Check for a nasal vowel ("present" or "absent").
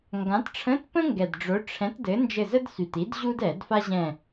present